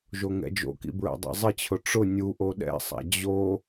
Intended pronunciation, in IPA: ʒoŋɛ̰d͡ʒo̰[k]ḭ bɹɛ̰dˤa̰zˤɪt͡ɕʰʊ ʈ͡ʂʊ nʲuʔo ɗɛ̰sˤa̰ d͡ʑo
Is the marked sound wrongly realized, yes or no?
no